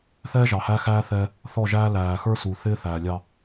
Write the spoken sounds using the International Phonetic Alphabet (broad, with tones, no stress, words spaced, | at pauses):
θɛː˦ʒɑ˨hæ˦xæː˦ θɛ˦ | θɔ˦˨ʒæː˦ læː˨xə˞˦su˨ θɪː˦θæː˨ lʲɑ˦